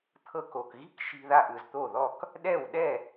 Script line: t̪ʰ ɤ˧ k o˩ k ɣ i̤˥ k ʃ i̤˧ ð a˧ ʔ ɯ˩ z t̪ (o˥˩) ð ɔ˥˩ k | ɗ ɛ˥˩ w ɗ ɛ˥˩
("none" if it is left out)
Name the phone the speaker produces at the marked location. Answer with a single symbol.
o˥˩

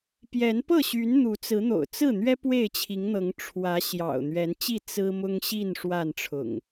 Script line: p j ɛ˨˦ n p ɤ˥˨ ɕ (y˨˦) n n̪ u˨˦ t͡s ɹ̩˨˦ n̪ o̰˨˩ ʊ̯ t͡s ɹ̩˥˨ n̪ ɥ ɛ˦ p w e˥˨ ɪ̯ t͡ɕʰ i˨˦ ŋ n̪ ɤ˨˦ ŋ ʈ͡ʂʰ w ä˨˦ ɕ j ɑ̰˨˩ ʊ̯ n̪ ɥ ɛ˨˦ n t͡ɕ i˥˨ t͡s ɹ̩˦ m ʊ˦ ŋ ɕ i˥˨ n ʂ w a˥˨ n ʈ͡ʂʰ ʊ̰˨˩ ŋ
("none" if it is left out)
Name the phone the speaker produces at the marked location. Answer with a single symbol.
y˨˦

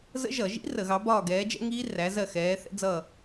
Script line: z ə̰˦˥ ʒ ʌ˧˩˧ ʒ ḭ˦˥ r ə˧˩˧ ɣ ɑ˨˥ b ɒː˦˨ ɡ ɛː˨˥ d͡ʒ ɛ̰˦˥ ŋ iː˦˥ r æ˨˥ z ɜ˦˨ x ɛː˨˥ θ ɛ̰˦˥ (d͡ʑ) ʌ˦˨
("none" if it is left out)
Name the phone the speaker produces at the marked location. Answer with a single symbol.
d͡z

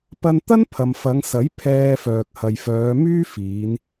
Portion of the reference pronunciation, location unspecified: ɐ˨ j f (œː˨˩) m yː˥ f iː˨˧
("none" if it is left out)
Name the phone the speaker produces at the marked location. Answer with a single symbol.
œː˨˧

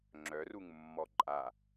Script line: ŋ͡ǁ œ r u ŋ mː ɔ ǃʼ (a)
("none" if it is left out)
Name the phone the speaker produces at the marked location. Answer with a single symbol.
a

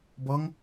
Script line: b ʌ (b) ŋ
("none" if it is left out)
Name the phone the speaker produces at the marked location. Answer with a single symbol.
none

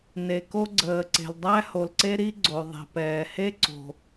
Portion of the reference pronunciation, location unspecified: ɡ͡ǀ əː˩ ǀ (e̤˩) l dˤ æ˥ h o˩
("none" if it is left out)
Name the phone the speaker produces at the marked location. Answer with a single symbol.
e̤˩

